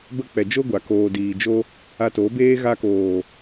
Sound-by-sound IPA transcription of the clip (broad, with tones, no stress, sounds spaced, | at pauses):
b ə˧ k͡p ɛ˨ d͡ʒ o˦ ɡʷ a˨ k oː˨ d iː˨ d͡ʒ o˧ | a˧ t oː˨˦ b eː˦ ɣ a˧ k oː˨